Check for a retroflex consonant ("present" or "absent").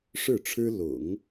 present